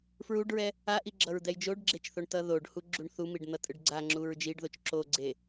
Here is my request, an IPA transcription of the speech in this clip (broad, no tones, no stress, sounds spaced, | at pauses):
f ɹ u ɖ ɹ ɛ | a ʔ i ɡ͡ǁ ʌ ɹ d̪ ɛ j d͡ʒ o ɖ ɡ͡ǁ e t͡ʃ θ o ɳ t ʌ ð o ɖ h u ɡ͡ǁ u ɳ θ u m i ɖ n̪ ʌ tʼ ɯ ɖ ɡ͡ǀ a ŋ͡ǁ u ɹ d͡ʒ i ɖ ð o t͡ʃ ǁ o ɡ͡ǀ e